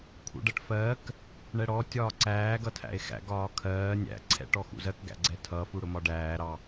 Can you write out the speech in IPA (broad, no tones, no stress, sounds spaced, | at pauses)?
kʰ ṵ ɖ ɜ ʈ f ɜː k | ɳ ɛ ɽ ɔ tʲ ɒː ǀ æː ɡ ʌ tʰ æ̰ e̯ x æ̰ ɡ ɒː kʰ ɜː nʲ æ̰ ǀʰ ɛ̰ ʈ ɔ x ṵ z ɜ k ɡ æ̰ ɡ͡ǀ ɛ tʰ ʌ f u ɽ ʊ m ɒ ɖ æː ɾ ɑ